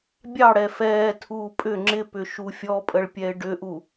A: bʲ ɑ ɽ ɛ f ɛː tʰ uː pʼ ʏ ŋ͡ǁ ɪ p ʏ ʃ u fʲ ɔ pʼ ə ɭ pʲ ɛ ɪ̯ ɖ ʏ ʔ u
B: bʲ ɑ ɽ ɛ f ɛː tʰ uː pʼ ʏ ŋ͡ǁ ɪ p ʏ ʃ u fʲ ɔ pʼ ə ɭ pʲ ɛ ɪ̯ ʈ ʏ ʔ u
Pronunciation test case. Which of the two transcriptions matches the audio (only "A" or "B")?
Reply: A